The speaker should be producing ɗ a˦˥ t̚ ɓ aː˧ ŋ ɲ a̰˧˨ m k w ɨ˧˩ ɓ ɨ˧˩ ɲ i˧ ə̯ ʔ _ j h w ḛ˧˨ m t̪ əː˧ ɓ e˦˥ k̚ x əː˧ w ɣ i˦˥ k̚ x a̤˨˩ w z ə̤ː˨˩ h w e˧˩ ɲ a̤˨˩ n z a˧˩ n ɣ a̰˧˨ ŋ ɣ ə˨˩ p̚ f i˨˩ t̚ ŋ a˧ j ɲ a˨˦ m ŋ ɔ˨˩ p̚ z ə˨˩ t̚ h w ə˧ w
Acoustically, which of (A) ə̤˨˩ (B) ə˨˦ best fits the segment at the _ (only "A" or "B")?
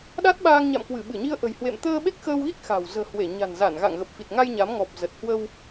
A